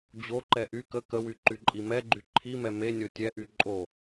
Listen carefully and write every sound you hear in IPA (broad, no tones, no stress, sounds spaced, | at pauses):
d͡ʑ o ǃ ɛ ʔ y k ə k ə w y ǃ y ǃʼ i m ɛ ɡ͡ǃ y ǃʰ i m ɛ m e nʲ o tʲ ɛ ʔ y ǃʼ o